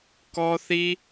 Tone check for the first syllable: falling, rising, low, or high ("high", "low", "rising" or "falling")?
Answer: high